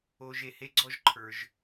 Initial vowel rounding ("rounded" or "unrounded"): rounded